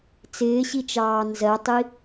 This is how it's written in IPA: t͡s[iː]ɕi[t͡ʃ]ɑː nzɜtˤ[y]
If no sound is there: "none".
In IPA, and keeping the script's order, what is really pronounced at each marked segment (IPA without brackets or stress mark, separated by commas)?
ɪː, t͡ʃ, i